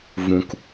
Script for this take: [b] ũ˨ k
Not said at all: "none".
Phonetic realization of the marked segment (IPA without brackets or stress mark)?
v